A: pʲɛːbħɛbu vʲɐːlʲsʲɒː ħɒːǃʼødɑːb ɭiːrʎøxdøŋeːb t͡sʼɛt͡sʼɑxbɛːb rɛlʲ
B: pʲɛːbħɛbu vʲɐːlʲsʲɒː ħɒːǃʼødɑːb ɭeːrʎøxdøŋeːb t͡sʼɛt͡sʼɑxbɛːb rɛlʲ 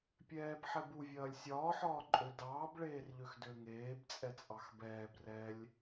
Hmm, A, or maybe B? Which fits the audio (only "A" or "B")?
B